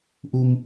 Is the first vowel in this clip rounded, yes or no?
yes